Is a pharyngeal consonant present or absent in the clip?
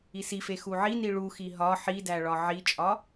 present